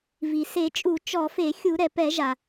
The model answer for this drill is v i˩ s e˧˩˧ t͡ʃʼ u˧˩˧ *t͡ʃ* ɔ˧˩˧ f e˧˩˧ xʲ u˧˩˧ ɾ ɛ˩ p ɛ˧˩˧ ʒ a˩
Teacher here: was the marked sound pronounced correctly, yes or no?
yes